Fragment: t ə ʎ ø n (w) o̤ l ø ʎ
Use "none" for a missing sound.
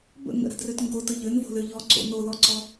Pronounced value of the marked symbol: v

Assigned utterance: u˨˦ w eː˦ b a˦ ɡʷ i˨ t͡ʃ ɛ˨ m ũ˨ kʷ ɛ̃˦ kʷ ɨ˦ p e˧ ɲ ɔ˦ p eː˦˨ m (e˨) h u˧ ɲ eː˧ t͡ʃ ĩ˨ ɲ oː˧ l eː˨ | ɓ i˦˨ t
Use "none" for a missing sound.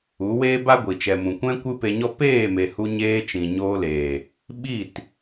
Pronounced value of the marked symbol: e˨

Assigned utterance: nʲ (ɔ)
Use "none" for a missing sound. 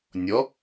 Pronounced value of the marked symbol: ɔ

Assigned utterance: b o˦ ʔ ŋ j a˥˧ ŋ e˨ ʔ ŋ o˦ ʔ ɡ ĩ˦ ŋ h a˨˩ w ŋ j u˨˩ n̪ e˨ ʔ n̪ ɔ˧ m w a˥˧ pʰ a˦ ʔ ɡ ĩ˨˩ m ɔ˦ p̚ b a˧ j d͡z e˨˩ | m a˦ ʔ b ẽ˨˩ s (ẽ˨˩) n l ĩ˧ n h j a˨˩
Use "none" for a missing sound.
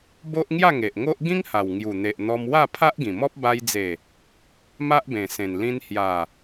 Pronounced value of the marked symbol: ẽ˨˩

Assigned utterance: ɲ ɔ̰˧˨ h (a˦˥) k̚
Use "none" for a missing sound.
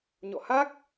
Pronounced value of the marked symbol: a˦˥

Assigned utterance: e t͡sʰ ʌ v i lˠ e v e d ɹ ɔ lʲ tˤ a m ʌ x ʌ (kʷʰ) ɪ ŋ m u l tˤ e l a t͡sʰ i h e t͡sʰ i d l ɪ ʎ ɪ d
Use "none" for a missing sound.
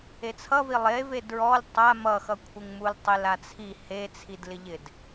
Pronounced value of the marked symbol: kʷʰ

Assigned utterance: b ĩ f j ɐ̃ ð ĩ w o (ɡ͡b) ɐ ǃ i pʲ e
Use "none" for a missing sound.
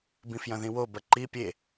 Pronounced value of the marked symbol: b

